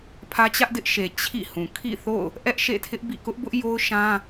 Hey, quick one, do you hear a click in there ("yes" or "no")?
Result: no